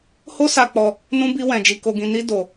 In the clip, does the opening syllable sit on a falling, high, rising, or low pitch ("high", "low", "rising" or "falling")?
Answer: high